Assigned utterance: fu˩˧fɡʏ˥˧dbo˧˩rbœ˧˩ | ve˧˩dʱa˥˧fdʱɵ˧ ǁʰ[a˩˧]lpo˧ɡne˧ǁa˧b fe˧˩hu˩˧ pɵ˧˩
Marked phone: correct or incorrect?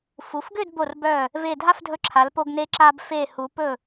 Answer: correct